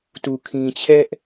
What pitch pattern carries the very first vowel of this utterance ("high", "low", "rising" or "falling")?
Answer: low